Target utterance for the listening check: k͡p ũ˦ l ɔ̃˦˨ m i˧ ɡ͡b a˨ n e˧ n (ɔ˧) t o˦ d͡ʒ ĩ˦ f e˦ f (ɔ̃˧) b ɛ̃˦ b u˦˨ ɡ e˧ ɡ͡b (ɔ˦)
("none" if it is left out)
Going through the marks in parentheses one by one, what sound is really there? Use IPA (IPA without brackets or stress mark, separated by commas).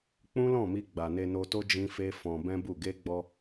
o˧, ɔ̃˧, ɔ˧